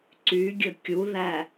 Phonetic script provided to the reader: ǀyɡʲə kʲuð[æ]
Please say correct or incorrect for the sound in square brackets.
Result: correct